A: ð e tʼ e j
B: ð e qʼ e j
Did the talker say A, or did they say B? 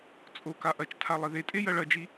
A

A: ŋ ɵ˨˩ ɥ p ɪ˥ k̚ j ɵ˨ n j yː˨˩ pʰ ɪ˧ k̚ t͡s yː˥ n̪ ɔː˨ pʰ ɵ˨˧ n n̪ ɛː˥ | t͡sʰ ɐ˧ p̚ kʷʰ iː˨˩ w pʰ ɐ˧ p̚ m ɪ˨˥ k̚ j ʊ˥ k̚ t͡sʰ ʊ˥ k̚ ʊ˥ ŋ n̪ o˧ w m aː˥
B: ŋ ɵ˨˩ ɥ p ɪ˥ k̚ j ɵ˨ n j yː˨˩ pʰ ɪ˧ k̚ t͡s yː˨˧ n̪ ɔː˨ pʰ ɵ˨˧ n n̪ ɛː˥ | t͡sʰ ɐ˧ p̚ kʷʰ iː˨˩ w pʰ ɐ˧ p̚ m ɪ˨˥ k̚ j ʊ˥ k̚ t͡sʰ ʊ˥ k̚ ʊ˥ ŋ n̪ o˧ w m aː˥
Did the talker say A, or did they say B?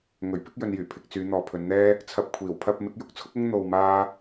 B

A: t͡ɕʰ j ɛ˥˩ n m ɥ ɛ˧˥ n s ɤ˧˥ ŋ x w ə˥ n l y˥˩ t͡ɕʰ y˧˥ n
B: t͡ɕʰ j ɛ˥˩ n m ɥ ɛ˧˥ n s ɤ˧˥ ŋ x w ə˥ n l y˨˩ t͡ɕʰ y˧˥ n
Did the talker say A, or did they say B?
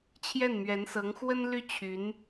A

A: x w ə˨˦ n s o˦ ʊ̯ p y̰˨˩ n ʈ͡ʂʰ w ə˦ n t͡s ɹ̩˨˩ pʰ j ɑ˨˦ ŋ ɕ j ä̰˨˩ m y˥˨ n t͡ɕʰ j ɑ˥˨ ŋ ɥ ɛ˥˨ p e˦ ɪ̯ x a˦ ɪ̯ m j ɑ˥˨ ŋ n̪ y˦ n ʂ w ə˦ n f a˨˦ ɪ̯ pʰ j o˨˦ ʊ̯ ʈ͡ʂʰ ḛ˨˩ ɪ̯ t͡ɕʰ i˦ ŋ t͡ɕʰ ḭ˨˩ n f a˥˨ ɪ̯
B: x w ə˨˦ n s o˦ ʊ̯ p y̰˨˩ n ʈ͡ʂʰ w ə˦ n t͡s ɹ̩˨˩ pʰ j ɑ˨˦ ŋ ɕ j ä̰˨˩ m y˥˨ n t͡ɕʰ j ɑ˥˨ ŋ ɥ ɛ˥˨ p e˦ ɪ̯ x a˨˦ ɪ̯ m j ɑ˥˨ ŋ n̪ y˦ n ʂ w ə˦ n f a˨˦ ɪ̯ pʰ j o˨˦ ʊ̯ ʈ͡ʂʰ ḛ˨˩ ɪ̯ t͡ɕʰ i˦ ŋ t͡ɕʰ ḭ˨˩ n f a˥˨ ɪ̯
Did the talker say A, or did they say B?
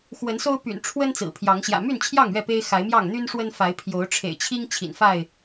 B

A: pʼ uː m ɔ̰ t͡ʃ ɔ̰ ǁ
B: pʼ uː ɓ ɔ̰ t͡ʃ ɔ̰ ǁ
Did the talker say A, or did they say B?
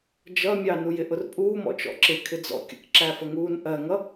A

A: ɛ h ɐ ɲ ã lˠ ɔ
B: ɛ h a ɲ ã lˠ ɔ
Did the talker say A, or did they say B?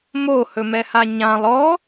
B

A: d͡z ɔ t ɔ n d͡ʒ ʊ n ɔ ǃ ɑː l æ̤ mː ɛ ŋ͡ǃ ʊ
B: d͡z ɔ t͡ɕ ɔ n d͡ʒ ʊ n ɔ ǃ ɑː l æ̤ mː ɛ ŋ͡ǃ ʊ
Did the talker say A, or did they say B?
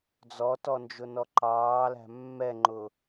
A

